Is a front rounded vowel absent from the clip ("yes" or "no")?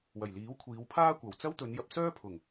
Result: no